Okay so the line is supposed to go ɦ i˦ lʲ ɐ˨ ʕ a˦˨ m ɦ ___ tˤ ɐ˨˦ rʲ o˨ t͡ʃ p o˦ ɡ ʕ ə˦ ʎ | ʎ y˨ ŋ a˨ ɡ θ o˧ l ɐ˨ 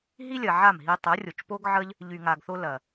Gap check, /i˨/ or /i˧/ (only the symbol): i˧